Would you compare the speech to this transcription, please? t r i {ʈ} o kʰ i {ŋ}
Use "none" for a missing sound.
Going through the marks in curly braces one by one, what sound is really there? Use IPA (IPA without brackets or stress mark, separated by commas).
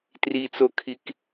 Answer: t͡s, k